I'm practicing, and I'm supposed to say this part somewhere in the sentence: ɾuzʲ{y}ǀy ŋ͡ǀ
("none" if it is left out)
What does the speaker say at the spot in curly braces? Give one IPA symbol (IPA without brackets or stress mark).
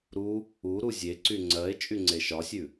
e